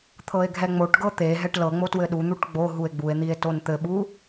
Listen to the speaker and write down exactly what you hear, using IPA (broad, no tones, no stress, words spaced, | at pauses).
t̪ʰɤe̯ɡʱɛŋ͡moʈɡɤ t̪e ɦɛʈlɤŋ͡mo twɘɗun̪uʈ ɡ͡bo ɦue̯ɡ͡bue̯n̪ie̯ tont̪ɘɓu